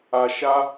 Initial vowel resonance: oral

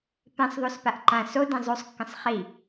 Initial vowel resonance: nasal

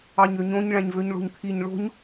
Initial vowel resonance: oral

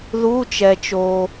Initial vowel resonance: oral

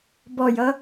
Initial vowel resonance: oral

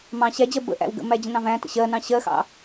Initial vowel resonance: nasal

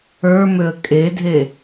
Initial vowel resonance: oral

